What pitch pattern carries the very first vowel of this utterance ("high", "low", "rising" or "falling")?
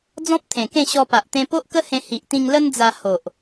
high